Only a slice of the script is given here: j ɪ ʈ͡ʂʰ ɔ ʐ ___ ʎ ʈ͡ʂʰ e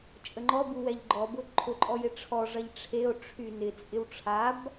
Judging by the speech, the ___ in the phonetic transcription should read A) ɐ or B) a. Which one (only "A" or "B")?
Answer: A